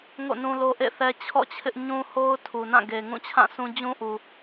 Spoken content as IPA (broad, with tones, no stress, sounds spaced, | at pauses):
ŋ o̰˦˨ n ũ˦ l o˦ ʔ ḛ˦˨ θ ɛ˦ t͡ɕʰ ɔ̰˦˨ t͡ɕʰ ɪ˦ ʔ ɲ ũ˦ h o˦ ʊ̯ tʰ u˨ n ã˦˨ ɡ e˨ ŋ ũ˦˨ t͡ɕʰ ã˦˨ sʰ ũ˦ d͡ʑ ũ˦ ʔ u˨